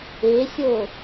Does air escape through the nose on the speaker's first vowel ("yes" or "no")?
no